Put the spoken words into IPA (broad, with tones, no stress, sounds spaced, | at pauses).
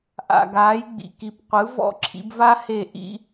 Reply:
ʔ a̰˩ ɡ aː˩˥ j ɡ͡b ḭ˩ k i˩˥ p qʷ ɯ˩˥ v ɔ̰˥˩ ǁʰ ḭ˩˥ b v a˥ h e˥˩ ʔ ḭ˥